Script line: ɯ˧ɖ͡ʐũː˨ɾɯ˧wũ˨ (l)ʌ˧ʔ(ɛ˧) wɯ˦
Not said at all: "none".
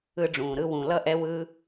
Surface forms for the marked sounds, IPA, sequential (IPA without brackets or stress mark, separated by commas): l, ɛ˧